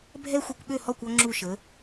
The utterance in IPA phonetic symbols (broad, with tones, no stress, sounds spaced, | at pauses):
bʱ ɛ˥ xʷ ɘ˧ kʷ ɓ ø˥˩ h ɔ˥˩ kʷ ɔ˧ ŋ͡ǁ u˥˩ ʃ ə˩˥